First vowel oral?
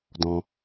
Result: no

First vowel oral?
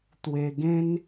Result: yes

